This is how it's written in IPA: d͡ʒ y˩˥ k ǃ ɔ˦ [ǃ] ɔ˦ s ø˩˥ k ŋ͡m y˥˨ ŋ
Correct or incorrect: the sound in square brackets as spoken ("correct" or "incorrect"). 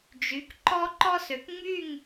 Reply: correct